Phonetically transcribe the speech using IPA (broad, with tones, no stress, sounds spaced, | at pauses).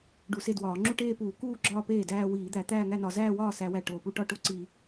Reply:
ɖ u˧˩˧ s e˥˩ d w ɒː˧˩˧ ŋ͡ǁ u˥˧ ʈ eː˥˧ p uː˧˩˧ k uː˥˧ ɡ͡ǁ ɒː˥˧ p eː˥˩ d æː˥˧ w iː˧˩˧ d̪ æ˧˩˧ t̪ æː˥˧ ŋ æ˥˧ n ɒ˧˩˧ z æː˥˧ w ɒː˥˩ s æ˧˩˧ w æ˨˩ ʈ oː˨˩ p u˥˧ ʈ ɒ˥˧ ʈ o˥˩ ǀ i˧˩˧